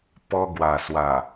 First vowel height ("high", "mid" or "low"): mid